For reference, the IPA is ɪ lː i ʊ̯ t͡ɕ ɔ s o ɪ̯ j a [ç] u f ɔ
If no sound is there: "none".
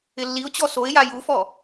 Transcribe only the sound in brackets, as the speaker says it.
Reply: j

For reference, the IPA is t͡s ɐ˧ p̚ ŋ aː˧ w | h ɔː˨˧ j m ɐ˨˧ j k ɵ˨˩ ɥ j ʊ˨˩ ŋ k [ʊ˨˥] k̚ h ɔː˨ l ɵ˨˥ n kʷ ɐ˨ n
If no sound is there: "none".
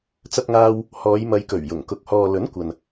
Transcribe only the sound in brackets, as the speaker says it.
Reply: ʊ˨˥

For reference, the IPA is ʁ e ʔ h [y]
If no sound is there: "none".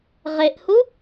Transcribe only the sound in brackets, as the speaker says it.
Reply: u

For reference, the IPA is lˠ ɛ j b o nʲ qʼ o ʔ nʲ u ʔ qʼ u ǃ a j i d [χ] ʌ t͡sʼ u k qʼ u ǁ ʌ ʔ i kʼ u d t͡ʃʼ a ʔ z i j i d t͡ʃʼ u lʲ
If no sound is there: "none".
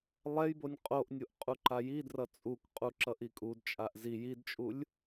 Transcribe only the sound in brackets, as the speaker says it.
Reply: r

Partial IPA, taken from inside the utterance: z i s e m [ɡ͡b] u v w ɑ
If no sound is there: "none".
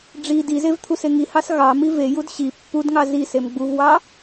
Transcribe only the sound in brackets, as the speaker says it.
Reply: ɡ͡b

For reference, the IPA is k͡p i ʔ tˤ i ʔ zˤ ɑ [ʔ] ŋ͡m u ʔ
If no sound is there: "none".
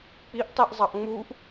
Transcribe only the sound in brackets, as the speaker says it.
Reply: ʔ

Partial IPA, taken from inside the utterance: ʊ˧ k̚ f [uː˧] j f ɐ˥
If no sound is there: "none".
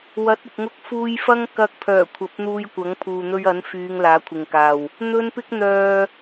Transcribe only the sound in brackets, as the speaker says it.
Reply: uː˧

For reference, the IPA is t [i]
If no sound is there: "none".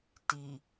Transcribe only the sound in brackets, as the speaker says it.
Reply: i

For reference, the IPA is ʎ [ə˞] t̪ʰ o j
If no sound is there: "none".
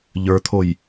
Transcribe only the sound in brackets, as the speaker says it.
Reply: ə˞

